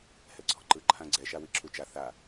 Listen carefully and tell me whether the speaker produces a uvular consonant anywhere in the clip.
no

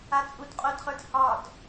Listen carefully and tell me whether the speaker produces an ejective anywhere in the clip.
yes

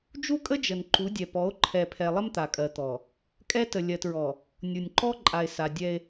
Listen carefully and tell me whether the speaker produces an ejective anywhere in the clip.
yes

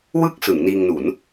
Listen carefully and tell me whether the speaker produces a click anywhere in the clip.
no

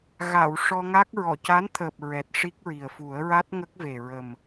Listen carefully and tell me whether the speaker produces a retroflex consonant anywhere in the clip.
yes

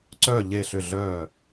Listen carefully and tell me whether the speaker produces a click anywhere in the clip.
yes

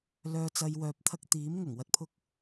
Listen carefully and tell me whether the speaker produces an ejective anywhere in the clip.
no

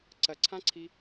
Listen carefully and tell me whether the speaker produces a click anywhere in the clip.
yes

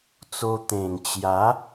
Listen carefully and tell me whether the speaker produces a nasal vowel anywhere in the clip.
yes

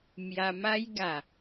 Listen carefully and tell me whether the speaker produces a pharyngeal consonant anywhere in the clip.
no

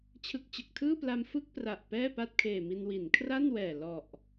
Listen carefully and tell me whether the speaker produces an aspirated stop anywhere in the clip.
yes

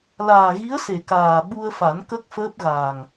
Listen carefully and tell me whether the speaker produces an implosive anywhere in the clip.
yes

